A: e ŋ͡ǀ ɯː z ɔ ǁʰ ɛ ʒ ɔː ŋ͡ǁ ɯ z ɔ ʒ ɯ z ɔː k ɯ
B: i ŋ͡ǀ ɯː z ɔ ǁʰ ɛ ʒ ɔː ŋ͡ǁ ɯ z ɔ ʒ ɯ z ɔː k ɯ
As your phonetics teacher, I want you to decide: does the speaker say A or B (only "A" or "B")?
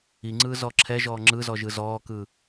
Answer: B